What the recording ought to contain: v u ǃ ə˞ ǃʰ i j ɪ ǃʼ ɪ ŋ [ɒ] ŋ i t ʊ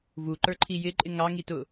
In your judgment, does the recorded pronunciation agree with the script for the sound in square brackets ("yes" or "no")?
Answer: no